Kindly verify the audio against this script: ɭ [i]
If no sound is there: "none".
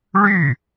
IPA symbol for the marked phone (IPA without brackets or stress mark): y